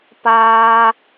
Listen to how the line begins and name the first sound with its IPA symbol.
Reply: p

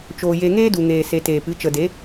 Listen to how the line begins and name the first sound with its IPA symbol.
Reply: t͡ʃ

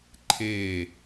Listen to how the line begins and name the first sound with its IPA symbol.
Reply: ǃʰ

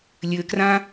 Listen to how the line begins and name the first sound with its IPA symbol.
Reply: lʲ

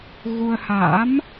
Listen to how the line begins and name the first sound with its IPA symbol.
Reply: ɣ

